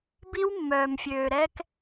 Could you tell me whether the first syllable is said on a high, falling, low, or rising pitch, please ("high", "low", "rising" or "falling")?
high